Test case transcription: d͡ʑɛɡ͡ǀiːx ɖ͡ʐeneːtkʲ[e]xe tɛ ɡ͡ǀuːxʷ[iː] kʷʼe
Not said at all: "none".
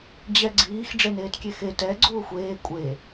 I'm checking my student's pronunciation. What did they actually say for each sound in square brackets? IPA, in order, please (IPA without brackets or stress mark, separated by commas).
e, eː